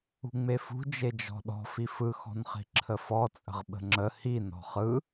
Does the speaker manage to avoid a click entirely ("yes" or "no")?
no